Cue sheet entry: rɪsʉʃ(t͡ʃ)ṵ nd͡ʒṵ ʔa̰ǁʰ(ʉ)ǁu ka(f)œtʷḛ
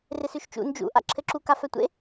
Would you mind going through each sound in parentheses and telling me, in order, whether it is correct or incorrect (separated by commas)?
correct, incorrect, correct